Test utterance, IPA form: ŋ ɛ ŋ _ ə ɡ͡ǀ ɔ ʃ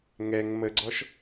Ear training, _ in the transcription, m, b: m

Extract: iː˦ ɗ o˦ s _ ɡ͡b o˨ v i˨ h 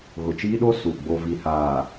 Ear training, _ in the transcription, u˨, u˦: u˨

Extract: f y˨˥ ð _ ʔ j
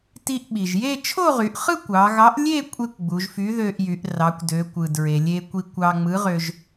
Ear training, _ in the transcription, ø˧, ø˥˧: ø˧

